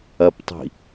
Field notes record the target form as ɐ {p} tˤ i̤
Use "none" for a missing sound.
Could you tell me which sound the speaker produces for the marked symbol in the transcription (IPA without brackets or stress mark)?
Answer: p